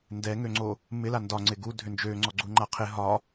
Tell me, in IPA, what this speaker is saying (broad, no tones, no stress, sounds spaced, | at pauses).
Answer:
n d ɛ ŋ ø ŋ͡ǀ o | m ɪ l a n d ɒ ŋ͡ǀ ɪ ɡ u dʱ ʏ n d͡ʒ ø ŋ͡ǀ ɔ ɡ͡ǀ u ŋ͡ǃ a qʰ ɪ ɦ ɒ